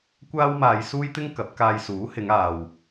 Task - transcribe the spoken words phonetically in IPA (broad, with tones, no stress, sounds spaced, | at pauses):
kʷ aː˥ w m aː˧ j s uː˥ j t̪ ɪ˥ ŋ k ɐ˨˥ p̚ k aː˧ j s uː˨˥ h ɪ˨˧ ŋ aː˨ w